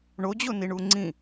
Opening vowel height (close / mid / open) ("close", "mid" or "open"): mid